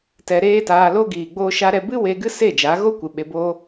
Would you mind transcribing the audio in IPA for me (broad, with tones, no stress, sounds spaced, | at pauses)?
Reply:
t ɛ˧ ɾ eː˦ t aː˧ l o˦ ɡ iː˨ ɡ͡b oː˧ ʃ a˧ ɾ ɛ˧ b ɨ˦ w e˧ ɡ ɨ˦ s e˦˨ d͡ʒ a˨˦ ɣ o˦ kʷ ɨ˨ ɓ e˧ b oː˦